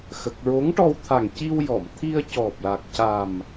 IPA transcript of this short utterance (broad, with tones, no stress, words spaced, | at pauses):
xə˨˩k̚ɹo˧˥ŋʈɔ˧w t̪ʰa˨˩ŋ ci˧wjɔ˨˩˨mt̪ʰi˧ə̯ cɔ˨˩p̚la˨˩k̚ca˨˩m